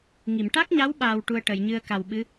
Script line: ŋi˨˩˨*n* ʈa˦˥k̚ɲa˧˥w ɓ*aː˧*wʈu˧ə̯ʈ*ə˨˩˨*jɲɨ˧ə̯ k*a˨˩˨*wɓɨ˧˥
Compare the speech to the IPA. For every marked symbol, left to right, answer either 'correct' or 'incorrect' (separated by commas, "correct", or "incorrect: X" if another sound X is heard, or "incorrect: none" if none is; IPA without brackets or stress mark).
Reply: incorrect: m, correct, correct, incorrect: a˨˩